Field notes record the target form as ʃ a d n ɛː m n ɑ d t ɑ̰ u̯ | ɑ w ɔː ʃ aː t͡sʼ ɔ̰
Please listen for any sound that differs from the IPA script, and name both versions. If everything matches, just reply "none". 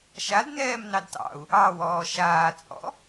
none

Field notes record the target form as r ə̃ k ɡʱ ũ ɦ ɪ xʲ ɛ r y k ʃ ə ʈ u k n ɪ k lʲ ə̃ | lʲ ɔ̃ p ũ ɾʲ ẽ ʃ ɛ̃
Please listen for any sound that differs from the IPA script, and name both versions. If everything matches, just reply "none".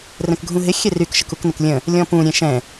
ʈ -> k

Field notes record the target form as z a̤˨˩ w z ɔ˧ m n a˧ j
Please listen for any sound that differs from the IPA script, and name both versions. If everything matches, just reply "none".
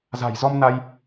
w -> j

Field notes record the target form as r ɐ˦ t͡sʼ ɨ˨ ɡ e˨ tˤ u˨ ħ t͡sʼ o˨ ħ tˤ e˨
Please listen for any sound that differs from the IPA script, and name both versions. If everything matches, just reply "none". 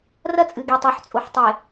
none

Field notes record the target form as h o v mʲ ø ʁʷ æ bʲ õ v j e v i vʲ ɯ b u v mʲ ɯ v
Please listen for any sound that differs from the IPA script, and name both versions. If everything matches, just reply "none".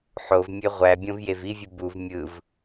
h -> ħ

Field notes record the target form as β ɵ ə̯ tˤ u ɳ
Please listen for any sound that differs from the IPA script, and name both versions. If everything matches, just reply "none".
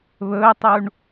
none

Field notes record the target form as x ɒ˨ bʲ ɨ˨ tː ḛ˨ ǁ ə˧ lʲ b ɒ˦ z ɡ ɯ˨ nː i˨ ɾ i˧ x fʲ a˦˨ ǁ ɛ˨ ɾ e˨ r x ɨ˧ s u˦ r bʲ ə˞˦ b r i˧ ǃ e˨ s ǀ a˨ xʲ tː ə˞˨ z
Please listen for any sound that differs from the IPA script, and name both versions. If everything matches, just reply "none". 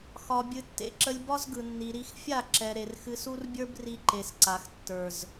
xʲ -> x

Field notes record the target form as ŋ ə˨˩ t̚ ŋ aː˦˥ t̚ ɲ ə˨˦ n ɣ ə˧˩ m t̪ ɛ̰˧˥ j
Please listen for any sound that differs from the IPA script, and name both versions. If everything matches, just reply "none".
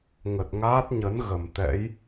none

